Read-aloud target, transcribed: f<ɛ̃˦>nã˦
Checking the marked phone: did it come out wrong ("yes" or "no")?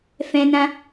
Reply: no